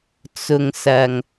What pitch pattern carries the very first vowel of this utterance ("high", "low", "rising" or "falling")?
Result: low